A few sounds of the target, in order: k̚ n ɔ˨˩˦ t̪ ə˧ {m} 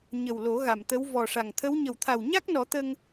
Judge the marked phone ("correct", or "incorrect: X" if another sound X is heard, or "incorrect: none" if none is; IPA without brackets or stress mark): incorrect: ŋ